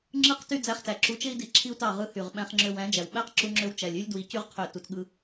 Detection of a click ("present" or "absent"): present